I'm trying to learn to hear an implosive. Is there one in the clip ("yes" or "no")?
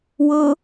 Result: no